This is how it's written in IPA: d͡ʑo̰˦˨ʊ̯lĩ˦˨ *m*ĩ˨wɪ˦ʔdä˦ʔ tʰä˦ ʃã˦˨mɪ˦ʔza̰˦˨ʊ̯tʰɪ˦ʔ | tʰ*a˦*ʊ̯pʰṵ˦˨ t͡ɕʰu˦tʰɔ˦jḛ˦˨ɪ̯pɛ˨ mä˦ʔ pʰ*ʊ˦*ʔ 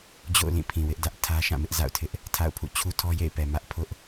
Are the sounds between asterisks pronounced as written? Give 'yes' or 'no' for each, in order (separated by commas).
no, no, yes